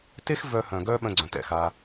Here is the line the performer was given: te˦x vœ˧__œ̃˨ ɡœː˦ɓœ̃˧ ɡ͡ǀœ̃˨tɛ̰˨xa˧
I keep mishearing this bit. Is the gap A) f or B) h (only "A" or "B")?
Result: B